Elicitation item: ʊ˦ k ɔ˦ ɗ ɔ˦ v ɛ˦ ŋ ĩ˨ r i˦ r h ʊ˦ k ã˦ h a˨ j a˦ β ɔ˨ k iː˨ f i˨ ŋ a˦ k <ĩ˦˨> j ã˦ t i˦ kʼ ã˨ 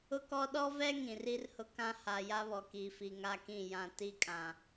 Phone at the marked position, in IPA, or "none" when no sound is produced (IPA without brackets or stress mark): ĩ˦˨